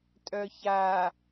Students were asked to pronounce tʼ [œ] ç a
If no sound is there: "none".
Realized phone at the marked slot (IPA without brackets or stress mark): œ